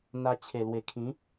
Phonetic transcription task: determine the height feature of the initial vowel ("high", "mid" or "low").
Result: low